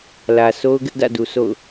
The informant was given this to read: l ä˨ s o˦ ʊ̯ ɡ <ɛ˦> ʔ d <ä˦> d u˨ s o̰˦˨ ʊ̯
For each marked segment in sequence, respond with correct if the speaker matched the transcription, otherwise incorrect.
incorrect: ɪ˦, incorrect: ä̰˦˨

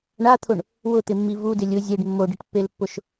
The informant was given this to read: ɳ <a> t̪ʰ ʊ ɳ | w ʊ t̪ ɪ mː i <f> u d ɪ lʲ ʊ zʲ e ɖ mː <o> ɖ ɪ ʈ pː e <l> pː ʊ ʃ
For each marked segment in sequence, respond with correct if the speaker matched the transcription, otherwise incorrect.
correct, incorrect: v, correct, correct

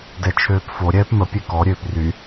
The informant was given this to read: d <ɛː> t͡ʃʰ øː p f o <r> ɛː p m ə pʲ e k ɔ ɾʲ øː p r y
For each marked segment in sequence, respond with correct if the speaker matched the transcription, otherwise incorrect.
incorrect: ɛ, incorrect: ɾʲ

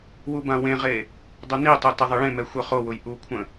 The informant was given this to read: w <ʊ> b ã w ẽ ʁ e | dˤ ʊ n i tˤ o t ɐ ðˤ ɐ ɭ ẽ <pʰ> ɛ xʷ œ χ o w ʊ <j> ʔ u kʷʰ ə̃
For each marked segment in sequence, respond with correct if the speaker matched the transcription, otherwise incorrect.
incorrect: u, incorrect: m, correct

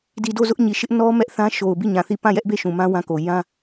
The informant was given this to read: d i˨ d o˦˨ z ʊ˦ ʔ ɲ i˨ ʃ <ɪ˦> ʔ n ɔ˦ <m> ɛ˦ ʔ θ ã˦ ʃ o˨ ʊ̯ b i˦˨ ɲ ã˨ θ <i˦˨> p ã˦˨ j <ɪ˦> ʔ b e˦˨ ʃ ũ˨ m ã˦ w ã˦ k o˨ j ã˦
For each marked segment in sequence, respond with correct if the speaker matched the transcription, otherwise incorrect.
correct, correct, correct, incorrect: ɛ˦

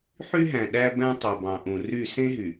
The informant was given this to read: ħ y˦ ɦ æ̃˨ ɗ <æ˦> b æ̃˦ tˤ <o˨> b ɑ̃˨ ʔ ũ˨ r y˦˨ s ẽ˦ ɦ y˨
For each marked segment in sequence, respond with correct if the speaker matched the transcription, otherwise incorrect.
correct, correct

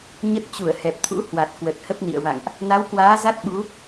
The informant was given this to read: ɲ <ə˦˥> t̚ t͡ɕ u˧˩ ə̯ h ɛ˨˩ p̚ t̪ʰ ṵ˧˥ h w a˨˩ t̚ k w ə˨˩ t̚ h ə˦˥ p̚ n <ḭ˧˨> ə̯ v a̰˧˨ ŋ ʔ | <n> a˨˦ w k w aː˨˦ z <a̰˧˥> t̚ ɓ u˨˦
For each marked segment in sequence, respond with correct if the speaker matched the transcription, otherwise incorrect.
correct, correct, correct, incorrect: a˦˥

